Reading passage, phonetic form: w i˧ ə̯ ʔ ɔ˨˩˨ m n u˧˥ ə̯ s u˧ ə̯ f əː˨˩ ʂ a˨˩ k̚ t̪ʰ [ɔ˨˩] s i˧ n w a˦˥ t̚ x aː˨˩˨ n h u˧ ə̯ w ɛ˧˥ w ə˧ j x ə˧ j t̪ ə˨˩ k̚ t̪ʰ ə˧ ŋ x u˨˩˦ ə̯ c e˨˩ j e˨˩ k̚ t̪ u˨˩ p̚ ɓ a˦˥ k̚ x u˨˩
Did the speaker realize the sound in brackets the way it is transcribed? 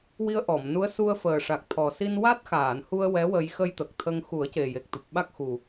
yes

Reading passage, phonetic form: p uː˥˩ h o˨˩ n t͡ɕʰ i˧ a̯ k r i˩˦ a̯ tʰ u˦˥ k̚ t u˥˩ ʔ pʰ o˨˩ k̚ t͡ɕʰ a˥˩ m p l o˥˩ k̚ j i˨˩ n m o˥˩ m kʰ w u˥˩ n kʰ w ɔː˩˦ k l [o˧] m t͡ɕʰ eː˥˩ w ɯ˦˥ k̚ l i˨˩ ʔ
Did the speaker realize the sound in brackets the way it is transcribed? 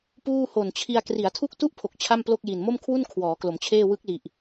no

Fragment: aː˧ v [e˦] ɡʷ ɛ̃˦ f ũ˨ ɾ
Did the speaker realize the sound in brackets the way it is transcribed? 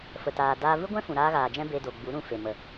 no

